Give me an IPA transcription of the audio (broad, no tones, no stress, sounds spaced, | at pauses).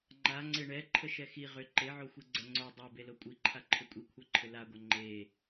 ŋ͡ǃ a ŋ͡ǀ e ɳ ɛ ǃʰ ə ʃ ɛ x i ʁ ʏ ǃ e ʕ o xʷ i ɡ͡ǀ ɛ ŋ͡ǀ o dˤ ɛ b e l o kʷʼ i ǃʰ a ǃʰ ʏ kʷʼ i kʷʰ ɛ ǃʰ ʏ l a ɡʷ ɛ ŋ͡ǃ e